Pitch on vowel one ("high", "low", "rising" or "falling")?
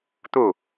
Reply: falling